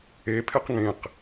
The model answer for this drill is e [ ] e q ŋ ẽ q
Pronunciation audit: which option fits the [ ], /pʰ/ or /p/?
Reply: pʰ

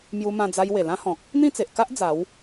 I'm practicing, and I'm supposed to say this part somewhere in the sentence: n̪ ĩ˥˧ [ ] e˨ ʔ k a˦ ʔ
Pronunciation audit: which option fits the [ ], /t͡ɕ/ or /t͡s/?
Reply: t͡s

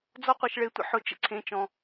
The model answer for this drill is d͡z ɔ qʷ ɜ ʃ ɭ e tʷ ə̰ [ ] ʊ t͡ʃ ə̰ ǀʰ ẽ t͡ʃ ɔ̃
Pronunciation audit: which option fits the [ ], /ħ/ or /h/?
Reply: ħ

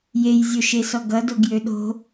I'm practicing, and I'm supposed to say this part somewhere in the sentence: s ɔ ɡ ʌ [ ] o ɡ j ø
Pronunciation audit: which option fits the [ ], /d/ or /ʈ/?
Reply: d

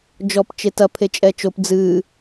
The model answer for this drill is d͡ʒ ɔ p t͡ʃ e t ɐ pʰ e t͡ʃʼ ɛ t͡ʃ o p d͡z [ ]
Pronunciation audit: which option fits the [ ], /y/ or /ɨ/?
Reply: ɨ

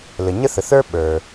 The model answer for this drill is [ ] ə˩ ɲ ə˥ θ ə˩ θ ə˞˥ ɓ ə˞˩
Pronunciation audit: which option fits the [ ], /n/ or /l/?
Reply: l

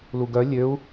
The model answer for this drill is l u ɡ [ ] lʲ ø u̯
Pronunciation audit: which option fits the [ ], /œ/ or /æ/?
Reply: œ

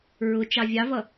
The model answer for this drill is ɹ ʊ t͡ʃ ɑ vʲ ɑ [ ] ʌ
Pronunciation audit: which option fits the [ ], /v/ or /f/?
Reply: v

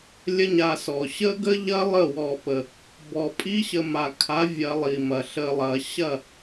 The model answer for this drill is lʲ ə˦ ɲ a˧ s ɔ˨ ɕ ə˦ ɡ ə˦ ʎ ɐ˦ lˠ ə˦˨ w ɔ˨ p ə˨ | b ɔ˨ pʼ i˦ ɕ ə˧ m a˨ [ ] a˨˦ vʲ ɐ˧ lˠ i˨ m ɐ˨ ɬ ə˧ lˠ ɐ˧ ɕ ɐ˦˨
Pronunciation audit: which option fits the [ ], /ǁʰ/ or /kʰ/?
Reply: kʰ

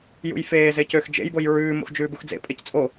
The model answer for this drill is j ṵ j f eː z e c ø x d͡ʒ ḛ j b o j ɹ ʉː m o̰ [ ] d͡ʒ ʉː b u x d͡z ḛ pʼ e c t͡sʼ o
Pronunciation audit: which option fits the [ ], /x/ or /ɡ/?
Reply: x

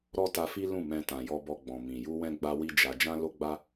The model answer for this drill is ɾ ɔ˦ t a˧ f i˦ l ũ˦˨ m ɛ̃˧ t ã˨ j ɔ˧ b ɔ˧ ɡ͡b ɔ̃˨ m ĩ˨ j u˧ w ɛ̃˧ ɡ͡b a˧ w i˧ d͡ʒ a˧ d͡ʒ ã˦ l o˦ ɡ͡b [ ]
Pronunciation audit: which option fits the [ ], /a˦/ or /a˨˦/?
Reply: a˦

